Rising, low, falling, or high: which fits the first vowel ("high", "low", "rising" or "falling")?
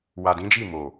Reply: low